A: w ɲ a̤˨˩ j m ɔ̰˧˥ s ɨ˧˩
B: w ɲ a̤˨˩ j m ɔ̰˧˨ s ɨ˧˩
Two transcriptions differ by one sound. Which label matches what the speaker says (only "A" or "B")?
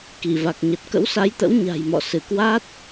B